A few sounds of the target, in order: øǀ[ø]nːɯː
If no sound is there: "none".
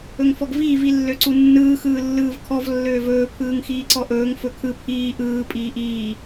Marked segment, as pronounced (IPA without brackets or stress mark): u